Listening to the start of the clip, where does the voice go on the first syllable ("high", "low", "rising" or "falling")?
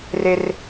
high